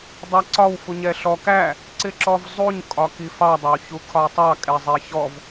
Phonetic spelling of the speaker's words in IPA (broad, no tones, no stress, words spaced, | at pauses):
dˤɑǀɒw fuɲɛɬɔ kæ | ǀɪǁɔvzˤuɲ kʼɒkifɑ dˤɑwçukʰɒtˤɑ kʼɛzˤɛçɔv